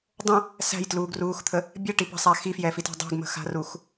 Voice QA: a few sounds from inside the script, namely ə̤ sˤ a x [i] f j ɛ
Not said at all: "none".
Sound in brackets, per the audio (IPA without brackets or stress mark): i